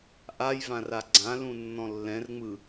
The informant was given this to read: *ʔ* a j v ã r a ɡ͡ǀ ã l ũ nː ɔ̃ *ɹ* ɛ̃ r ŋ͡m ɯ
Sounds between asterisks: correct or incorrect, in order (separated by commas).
correct, incorrect